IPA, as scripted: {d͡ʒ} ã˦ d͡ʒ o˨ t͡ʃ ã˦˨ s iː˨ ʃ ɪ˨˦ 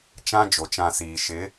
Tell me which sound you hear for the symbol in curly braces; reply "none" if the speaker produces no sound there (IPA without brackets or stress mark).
t͡ʃ